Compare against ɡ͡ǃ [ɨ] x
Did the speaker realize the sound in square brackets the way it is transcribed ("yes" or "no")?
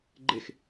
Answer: no